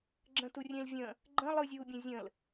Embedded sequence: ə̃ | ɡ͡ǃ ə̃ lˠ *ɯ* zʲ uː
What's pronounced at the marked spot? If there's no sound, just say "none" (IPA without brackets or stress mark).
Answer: ɯ